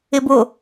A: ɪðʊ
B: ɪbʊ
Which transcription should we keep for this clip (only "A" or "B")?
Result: B